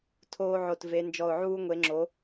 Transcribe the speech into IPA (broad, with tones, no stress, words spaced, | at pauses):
tʰoː˦ʕo˧˩tve˨˦ nd͡ʒɔ˧˩ʊ̯ʕuː˦ ŋʷe˨˦ŋ͡ǁo˨˦